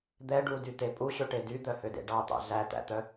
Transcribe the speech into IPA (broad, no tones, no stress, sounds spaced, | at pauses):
d̪ ɛ ɖ u d y t̪ e pʼ u ɕ ø ʈ e d y d̪ œ h ø d ḛ ɖ ɑ t̪ ɑ̰ ɮ æ t̪ æ̰ t̪ œ